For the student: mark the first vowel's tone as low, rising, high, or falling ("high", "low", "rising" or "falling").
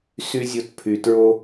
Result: high